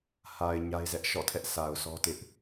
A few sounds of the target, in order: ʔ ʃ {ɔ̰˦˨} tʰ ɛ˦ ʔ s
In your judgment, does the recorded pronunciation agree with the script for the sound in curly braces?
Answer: yes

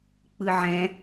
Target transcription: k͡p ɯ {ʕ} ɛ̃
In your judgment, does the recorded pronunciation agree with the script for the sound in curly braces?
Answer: yes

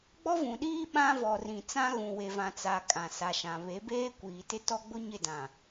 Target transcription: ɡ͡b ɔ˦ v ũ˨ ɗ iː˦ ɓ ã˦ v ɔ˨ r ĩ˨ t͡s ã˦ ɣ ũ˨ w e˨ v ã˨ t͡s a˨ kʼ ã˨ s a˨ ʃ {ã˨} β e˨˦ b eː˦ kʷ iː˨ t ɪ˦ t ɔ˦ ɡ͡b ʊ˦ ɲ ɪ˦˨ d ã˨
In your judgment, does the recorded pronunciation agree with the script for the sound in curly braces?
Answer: yes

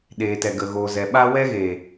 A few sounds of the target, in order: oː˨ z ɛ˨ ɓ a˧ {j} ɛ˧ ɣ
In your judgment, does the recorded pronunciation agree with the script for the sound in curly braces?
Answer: no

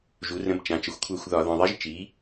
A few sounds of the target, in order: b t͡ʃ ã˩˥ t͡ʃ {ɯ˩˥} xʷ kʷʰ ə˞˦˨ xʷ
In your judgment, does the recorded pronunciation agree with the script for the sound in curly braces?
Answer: no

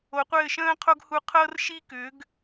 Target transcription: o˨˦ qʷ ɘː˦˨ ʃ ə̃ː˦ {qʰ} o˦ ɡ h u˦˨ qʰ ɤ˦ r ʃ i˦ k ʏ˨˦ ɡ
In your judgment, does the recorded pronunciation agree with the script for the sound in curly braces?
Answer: yes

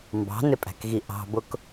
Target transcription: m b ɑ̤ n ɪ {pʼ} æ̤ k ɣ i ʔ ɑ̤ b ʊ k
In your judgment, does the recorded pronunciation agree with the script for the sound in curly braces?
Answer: yes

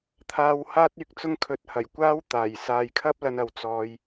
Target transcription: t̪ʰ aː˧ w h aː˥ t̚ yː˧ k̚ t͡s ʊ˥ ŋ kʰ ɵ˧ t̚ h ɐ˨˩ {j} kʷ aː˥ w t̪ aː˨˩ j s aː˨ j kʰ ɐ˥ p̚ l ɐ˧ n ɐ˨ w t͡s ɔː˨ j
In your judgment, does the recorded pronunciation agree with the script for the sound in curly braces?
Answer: yes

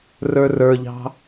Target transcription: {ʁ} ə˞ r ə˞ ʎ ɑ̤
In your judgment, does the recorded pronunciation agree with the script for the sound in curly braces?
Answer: no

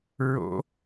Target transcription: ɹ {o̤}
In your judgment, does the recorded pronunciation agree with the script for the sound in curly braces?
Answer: no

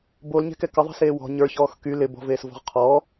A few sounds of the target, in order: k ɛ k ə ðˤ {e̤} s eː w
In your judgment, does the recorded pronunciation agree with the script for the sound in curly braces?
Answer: no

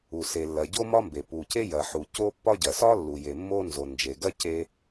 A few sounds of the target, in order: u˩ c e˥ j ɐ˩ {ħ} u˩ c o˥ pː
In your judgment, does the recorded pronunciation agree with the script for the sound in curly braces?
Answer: yes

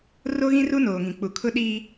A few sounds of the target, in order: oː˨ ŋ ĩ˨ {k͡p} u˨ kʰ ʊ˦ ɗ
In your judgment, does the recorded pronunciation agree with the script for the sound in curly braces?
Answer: yes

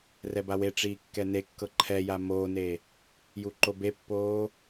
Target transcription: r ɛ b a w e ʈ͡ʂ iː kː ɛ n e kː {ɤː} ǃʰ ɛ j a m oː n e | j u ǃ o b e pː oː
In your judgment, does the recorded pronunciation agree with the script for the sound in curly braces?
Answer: no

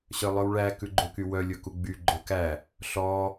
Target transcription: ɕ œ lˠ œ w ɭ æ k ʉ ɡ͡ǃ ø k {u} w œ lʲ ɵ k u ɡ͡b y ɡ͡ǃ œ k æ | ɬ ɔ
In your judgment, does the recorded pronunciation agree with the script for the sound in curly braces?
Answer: no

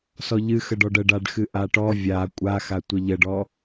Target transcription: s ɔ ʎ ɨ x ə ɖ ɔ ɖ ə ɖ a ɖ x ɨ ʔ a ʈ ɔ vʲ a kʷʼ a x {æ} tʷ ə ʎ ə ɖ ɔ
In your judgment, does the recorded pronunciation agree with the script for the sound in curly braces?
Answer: no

